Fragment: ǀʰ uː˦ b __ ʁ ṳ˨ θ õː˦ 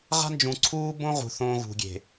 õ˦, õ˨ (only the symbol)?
õ˦